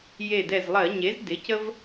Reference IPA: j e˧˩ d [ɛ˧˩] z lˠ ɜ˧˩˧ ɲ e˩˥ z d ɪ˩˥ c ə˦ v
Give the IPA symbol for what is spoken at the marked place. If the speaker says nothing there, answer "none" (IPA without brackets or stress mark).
ɛ˧˩